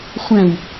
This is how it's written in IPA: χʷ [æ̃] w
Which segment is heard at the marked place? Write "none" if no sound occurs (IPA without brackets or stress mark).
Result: æ̃